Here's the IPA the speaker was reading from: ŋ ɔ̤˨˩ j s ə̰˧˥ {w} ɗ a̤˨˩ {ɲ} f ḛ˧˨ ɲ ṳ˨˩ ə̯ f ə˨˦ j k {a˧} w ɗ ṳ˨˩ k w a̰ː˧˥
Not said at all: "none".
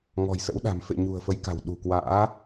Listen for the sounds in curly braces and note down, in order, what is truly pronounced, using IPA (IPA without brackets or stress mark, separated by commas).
w, m, a̤˨˩